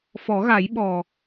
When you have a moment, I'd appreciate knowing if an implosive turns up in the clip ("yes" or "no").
yes